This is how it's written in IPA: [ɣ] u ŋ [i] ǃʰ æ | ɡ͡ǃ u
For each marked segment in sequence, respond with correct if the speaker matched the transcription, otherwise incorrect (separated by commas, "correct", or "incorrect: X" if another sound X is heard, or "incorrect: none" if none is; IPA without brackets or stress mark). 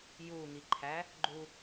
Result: incorrect: j, correct